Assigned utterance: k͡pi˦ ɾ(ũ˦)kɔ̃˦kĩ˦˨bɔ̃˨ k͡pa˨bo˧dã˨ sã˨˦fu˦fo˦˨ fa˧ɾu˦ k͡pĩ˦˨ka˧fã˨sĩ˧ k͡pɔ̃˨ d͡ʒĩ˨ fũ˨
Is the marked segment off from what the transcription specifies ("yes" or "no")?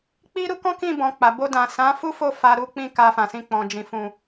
yes